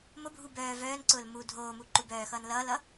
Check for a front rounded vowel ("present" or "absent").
present